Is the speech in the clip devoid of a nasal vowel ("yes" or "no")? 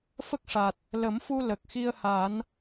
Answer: yes